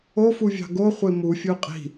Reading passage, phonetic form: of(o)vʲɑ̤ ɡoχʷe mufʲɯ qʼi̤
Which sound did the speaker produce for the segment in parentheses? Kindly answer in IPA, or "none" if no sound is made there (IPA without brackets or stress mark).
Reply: u